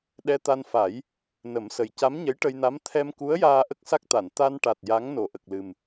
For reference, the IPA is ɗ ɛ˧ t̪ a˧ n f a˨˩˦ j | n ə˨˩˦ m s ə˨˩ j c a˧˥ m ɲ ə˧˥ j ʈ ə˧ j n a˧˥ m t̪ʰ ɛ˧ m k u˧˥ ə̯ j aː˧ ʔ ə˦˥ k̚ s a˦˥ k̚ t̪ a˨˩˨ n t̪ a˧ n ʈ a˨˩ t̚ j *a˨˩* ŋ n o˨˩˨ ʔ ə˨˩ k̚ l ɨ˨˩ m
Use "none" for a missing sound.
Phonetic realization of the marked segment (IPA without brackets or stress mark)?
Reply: a˧˥